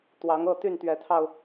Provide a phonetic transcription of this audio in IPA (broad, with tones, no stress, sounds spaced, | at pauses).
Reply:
t̪ w ɑ˨˦ ŋ ɤ˥˨ t̪ y˥˨ n t̪ ɥ ɛ˨˦ t̪ʰ ɑ˧ ʊ̯